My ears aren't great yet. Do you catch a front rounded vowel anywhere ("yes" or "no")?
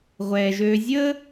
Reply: yes